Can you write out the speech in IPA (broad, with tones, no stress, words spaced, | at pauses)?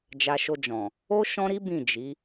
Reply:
d͡ʒa˧ʃo˧d͡ʒɔ̃˨ | o˦ ʃɔ̃˦ɾi˦ bĩ˦˨ d͡ʒi˨˦